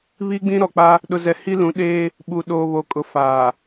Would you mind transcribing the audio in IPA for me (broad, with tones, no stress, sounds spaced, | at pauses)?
β i˦ ɡ͡b ĩ˦ ɾ ɔ˨ k͡p a˦ | ɗ ʊ˨ z ɛ˨ h i˦ l ũ˨˦ ɗ eː˦ | ɓ u˨ ɗ oː˨ β o˨ kʼ ʊ˨ f aː˨